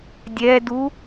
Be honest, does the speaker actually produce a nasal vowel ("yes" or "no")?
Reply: no